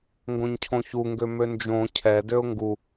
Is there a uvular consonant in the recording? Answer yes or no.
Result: no